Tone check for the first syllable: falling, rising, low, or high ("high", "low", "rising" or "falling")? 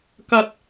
high